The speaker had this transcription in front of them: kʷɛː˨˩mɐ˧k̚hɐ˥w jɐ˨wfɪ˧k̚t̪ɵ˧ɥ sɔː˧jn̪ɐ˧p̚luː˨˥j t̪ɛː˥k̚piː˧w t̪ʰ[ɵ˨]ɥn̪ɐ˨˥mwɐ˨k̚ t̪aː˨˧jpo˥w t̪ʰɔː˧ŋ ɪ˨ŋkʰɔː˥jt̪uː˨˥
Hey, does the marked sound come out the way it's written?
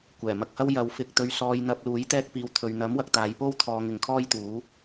yes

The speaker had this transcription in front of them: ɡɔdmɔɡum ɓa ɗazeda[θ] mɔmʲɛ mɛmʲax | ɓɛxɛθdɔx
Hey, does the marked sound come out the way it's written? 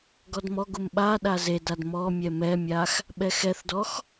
no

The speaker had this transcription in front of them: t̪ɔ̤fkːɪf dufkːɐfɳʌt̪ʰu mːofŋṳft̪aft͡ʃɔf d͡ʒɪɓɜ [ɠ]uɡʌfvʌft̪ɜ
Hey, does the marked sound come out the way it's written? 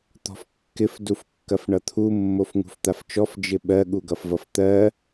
yes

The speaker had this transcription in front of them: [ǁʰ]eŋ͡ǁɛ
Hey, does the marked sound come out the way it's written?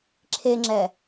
yes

